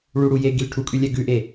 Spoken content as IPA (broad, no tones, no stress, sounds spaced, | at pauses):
ɭ u ɽ u j e ɡ i l ʈʰ u kʼ ʉ lʲ ɛ ɡ ʉ ʔ e